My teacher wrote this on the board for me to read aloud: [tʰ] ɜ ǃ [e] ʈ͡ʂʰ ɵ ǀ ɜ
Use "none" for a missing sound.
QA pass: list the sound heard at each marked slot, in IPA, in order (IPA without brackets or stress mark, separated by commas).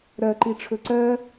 ɾ, i